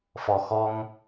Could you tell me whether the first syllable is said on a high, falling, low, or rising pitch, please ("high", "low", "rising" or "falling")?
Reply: low